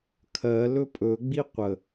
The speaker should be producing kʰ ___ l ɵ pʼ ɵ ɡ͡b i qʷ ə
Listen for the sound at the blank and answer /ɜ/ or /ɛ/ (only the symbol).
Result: ɜ